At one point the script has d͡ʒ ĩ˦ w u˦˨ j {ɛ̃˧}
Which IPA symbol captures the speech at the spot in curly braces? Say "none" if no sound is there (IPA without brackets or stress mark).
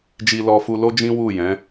ɛ̃˨˦